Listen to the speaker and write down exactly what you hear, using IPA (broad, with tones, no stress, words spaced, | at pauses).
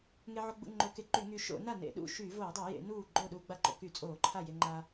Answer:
ŋe˧ʕo˧ɡ͡bṵ˧ ŋ͡ǃo˧˩˧ke˧ǃy˧˩˧ŋyː˧ ʃo̰˧˩˧na˥˩ nḛ˧˩˧ɗṵ˥˩ ʃyː˧˩˧voː˧˩˧dˤo˧˩˧jḛ˧˩˧ nuː˥˩ ɡ͡ǃoː˥˩ɗuː˧ɡ͡ba˥˩ǃo̰˧ ky˧˩˧ t͡sʼoː˧˩˧ǃʰa˥˩ je˧ŋ͡ǃa˧